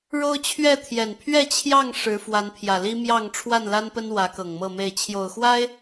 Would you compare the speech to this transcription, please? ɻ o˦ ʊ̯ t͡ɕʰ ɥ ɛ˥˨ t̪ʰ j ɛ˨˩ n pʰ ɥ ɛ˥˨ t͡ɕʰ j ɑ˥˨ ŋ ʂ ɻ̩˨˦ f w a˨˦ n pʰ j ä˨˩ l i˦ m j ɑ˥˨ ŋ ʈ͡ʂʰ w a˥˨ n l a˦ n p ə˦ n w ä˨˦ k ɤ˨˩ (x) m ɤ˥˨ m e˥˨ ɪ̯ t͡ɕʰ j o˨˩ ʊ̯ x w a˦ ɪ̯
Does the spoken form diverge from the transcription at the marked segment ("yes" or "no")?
yes